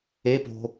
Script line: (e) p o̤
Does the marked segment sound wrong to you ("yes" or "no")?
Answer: no